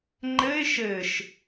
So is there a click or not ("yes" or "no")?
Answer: yes